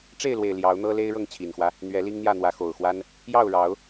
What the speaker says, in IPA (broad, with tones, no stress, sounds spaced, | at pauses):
ʈ͡ʂ e˥˨ ɪ̯ l w e˨˩ ɪ̯ l j ɑ˨˦ ʊ̯ n̪ ɤ˦ l e˦ ɪ̯ ɻ ɤ˥˨ ŋ t͡ɕʰ i˨˩ n x w ä˦ | n̪ ɥ ɛ˨˦ l i˦ ŋ n̪ j ä˥˨ n̪ w ä˨˦ x o˨˩ ʊ̯ x w a˦ n | j ɑ˥˨ ʊ̯ ɻ ɑ˨˦ ʊ̯